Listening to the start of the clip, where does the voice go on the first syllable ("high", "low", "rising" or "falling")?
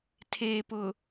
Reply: low